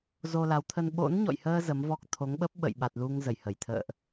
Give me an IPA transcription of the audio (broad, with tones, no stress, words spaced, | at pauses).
zo˧la˨˦wt̪ʰə˧n ɓo̰˧˥nɲɔ̰˧˨jhəː˧ zə˨˦mvɔ˦˥k̚ t̪ʰo˨˦ŋɓə˦˥p̚ ɓə̰˧˨j ɓa˨˩t̚lu˧ŋ zə˧˩jhə˧˩j t̪ʰə̰ː˧˨ʔ